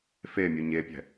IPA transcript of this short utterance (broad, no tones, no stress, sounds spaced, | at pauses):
f e mʲ u ɲ e pʲ ɛ̤